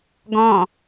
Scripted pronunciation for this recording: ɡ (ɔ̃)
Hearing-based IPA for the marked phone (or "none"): ɔ̃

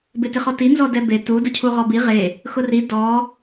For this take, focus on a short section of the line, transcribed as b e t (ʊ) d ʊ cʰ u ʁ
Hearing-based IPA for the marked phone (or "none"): u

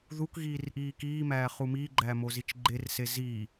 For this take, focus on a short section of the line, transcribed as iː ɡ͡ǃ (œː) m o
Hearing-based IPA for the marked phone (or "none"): æː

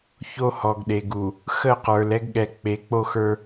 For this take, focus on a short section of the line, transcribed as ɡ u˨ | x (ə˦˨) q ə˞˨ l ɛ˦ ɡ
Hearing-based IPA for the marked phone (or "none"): ə˦˨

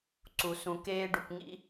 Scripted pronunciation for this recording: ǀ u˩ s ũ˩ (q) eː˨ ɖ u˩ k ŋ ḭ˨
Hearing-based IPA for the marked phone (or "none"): k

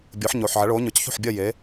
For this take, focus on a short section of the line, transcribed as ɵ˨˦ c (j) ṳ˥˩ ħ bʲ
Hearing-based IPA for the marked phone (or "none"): ç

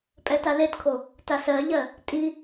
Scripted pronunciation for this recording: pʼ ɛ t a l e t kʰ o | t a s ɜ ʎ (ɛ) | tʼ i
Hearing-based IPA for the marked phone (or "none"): ɜ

